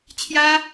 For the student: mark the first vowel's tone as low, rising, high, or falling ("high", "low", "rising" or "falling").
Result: high